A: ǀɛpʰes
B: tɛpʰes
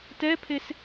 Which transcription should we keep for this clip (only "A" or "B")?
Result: B